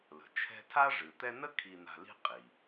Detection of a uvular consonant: present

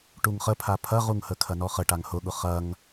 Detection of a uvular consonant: present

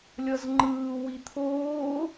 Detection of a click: present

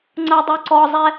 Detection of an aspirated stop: absent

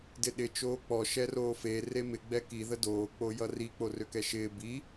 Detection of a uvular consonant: absent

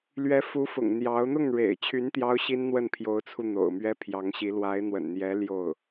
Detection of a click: absent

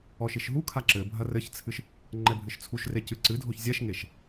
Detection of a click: present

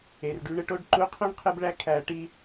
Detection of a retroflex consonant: present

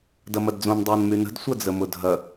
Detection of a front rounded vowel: present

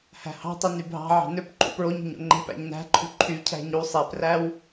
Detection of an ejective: absent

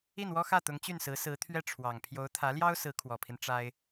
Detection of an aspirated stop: present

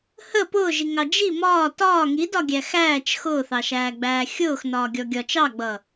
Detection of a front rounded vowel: absent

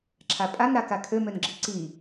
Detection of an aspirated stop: present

